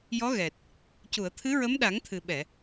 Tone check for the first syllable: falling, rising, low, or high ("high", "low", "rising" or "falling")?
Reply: rising